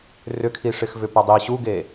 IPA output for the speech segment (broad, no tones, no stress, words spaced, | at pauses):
rʏkʰiʂɪxvʏ pʏdˤi ɕuɡe